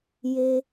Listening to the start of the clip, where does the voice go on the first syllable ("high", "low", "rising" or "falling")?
high